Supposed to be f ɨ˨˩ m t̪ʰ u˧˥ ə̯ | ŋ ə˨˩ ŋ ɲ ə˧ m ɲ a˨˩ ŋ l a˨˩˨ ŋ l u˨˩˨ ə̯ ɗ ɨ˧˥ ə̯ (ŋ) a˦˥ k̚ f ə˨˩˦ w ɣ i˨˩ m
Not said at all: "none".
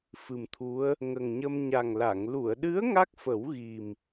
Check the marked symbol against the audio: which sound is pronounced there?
ŋ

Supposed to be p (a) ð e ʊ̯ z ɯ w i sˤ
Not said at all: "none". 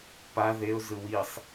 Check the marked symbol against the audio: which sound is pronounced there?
a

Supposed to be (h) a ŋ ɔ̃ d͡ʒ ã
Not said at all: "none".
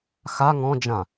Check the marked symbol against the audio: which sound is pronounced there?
x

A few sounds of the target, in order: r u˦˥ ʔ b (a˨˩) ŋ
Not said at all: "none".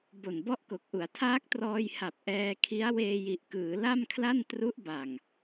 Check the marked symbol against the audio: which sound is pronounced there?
a˨˩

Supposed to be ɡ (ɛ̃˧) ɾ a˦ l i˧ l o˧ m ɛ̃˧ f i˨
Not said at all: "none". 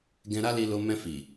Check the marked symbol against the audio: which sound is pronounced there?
ɛ̃˧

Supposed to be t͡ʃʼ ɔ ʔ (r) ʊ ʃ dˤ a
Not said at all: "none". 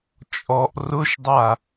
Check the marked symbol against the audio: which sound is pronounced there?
r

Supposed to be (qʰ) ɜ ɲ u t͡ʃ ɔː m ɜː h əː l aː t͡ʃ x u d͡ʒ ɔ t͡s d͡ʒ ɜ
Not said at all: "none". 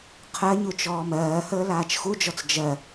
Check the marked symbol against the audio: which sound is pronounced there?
qʰ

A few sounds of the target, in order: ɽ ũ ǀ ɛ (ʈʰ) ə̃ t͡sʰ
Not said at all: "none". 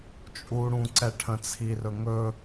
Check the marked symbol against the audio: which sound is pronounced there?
ʈʰ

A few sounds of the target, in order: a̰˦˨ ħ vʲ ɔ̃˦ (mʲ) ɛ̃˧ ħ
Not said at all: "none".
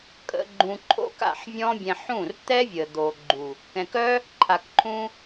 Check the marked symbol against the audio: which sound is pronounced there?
bʲ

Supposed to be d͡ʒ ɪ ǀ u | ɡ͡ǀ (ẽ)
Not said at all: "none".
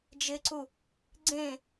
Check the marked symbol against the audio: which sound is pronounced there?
ẽ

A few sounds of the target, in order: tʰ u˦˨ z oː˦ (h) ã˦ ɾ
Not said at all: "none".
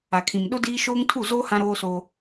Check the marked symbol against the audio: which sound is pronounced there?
h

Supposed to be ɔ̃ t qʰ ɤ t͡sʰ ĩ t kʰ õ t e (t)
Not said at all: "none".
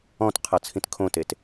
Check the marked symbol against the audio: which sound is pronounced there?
t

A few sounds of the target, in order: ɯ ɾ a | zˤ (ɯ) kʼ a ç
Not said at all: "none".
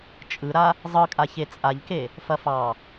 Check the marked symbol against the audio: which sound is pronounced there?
ɯ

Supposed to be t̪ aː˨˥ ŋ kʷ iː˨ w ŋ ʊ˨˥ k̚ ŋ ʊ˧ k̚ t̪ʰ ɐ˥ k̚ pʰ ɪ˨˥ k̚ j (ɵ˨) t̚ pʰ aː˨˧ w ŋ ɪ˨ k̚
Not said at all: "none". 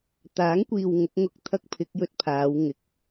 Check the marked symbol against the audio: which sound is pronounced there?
ɵ˧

